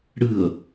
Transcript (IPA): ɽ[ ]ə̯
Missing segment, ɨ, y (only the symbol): ɨ